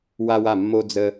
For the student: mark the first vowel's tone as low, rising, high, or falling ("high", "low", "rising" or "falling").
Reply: high